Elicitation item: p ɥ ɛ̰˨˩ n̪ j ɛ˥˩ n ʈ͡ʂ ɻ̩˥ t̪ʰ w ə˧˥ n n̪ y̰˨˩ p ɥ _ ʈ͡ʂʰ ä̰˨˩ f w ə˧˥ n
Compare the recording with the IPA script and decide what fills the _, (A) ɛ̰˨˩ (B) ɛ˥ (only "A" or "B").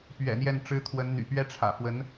B